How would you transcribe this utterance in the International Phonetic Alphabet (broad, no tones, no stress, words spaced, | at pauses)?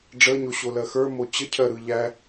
ɖ͡ʐəɲoɕolɜ xə˞mo t͡ɕəcʰɜɾɯ ʎæ